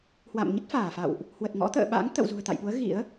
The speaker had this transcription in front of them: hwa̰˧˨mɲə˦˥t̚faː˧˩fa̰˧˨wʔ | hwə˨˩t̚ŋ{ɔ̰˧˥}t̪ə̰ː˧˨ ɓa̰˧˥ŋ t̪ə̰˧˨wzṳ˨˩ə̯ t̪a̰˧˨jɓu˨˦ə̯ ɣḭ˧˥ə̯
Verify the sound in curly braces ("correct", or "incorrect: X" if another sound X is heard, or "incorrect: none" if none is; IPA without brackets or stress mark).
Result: correct